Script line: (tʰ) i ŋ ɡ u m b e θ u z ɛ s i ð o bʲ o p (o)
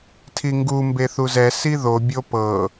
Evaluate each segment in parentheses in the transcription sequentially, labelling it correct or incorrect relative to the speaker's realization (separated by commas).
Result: correct, incorrect